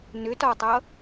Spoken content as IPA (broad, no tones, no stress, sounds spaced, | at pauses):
n ʏ t ɒ tˤ ʌ